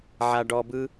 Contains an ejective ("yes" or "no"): no